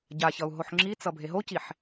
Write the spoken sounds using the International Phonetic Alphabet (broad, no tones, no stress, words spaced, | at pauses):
ɟaçʌu̯ ɦoħŋ͡ǁit͡sʌ bʱeɦociħ